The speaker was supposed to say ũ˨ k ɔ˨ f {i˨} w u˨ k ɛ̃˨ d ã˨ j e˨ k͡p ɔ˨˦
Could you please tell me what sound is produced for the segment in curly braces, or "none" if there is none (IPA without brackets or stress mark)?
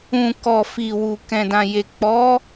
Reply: i˨